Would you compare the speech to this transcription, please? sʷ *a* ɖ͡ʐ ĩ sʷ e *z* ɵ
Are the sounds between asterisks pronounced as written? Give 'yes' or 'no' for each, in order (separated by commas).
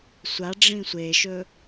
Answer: yes, no